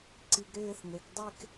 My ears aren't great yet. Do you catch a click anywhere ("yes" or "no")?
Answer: yes